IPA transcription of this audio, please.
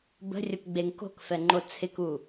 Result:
b ə̤ rʲ ə p ɡ͡b e ŋ k o̤ k f ɛ ŋ͡ǃ o t͡sʰ ɪ k u

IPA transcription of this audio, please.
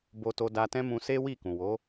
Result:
b o˧ t o˧ d a˧ t ɛ̃˦ m ũ˧ s e˦ w i˦˨ k ũ˨ w o˨˦

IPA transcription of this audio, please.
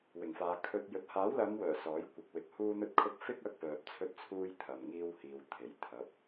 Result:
w ɪ˨˩ ŋ f aː˨ kʰ ɵ˧ t̚ j ɵ˨ t̚ h aː˨˥ w l ɐ˨˧ m w œː˨˩ s ɔː˨˥ j kʷ ɪ˨ k̚ w ɪ˨ k̚ h uː˧ n̪ ɵ˧ t̚ kʰ ʊ˧ k̚ f ɪ˥ k̚ ɐ˧ k̚ p œː˨ p̚ t͡sʰ ɵ˧ t̚ t͡sʰ uː˧ j t̪ʰ ɐ˨ m ŋ iː˧ w h iː˨ w t̪ʰ e˨˩ j t̪ʰ ɐ˨˥ p̚

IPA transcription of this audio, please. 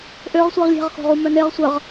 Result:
ʔ ø ʁ sʷ i ʁ lʲ e̤ ʁ x o̤ ʁ u m œ n e ʁ sʷ ə ʁ

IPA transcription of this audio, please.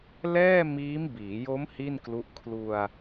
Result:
l ɛː˥˩ m iː˦˥ m b iː˩˦ j o˦˥ m h i˥˩ n k l u˦˥ ʔ kʰ l u˧ a̯

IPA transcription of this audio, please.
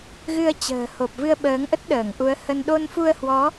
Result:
ɣ ɨ˧ ə̯ t͡ɕ ə̤ː˨˩ h o˨˩ p̚ v ɨ˧ ə̯ ɓ əː˨˦ ŋ ʔ ə˦˥ t̚ ɗ əː˧˩ ŋ ʔ u˨˦ ə̯ h ə˧ n ɗ o˧ n f u˧ ə̯ h w ɔ˨˦

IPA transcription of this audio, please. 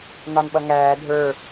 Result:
n ɑ n ɓ ʌ ŋ æː dʱ ə˞

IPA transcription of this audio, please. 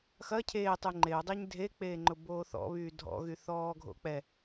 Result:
x ɐ cʰ eː tˤ y ŋ͡ǃ e ʊ̯ dˤ e ɲ dʱ e k͡p eː ŋ͡ǃ ʊ b oː θ ɔ̰ β yː dʱ ɔ̰ ɣ y θ ɔː ɡʱ o̰ k͡p ɛ

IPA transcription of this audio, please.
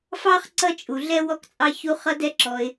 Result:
f ɑ˥ χ ǀ ʌ˥ t͡ʃʼ u˩ ɮ ɛ˥ w ɔ˧ k t͡sʼ ɑ˧ ç u˧ χ ʌ˧ d ɛ˧ ǁ ɔ˩ ɪ̯

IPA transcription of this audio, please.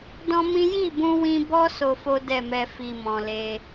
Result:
d ɔ̃˦ m ĩ˦ j i˦˨ b ũ˧ w ĩ˧ b ɔ˦ s o˧ f o˦ d ɛ˦˨ m ɛ˧ f i˨ m ɔ̃˨ l e˧

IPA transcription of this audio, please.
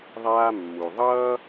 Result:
ðˤ aː˧ mː u˩ ðˤ ʌː˧

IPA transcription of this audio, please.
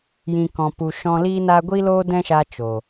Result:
j ĩ˨ k ɔ̃˨ p u˨ ʃ ɔ̃˧ l iː˦ n a˦ ɡʷ i˦ l oː˦ d ɛ̃˦ ʃ a˧ t͡ʃ o˨

